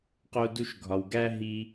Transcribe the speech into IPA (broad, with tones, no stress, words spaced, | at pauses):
qo˦du˦ʃɡʱɒ˧w ɡæ˦ ɦi˦